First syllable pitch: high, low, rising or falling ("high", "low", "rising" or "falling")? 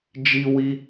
high